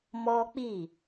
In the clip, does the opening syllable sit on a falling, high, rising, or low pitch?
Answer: high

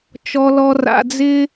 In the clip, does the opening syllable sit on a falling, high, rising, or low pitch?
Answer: low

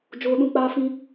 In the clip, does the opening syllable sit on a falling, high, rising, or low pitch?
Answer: high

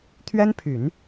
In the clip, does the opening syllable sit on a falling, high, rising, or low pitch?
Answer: high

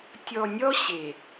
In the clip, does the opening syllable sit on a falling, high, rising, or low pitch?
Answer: low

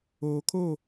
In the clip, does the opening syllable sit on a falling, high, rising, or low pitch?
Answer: low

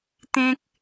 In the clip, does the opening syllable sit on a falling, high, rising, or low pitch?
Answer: high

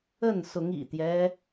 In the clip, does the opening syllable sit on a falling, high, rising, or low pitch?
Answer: falling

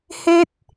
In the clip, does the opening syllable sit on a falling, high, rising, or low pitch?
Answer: high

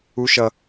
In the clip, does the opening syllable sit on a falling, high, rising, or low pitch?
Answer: high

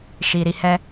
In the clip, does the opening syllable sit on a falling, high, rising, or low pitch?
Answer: low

